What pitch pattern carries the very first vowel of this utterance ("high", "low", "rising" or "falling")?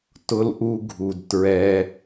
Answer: high